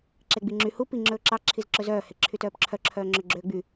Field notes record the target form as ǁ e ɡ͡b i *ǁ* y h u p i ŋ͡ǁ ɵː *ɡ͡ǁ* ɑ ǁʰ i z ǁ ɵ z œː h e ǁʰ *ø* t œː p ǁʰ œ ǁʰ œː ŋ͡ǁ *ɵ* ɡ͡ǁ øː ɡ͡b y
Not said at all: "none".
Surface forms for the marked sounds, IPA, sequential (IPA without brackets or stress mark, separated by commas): ŋ͡ǁ, ǁ, y, ø